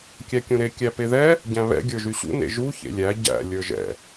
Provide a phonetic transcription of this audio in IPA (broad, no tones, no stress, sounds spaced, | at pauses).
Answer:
kʲ æ kʲ ũ ɾ e kʲ æ p e ð ɛ | ɟ æ̃ β ɛ̰ ɡʲ ə˞ ʒ y ɕ ṵ n ḛ ʒ u ç ḛ lʲ æ ɟ æ̰ lʲ ə˞ ʒ ɛ̰